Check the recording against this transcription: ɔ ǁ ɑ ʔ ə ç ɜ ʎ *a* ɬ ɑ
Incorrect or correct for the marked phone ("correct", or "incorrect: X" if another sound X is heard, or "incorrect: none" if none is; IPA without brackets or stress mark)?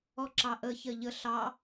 incorrect: ə